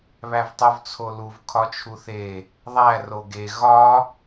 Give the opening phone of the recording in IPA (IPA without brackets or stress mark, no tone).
β